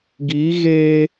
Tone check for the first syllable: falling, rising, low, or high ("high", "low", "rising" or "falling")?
rising